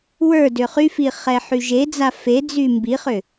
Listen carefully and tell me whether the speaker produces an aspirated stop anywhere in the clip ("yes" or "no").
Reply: no